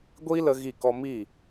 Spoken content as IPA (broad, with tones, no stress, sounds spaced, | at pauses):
ɡʷ iː˦ l ə˧ ɣ i˦˨ k ɔ˦ m i˦˨